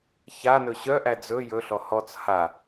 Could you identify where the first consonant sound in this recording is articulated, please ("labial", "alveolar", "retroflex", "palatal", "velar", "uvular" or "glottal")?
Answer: palatal